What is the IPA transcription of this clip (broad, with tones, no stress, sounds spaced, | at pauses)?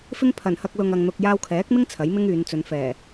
f ɪ˥ ŋ pʰ ɐ˨˩ n h ɐ˧ k̚ l ʊ˨ ŋ ɐ˨ ŋ n̪ ʊ˧ k̚ j aː˧ w kʰ ɛː˨˥ k̚ m ɪ˥ ŋ t͡sʰ ɐ˨˥ j m ɪ˥ ŋ yː˨˧ n t͡s ɵ˨˧ n f ɛː˨˩